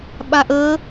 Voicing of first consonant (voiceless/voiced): voiced